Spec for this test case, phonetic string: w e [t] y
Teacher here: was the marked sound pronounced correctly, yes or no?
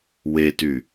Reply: yes